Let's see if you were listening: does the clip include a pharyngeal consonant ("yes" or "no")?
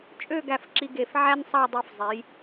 yes